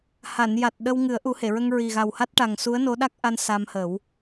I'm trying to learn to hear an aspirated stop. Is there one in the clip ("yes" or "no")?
no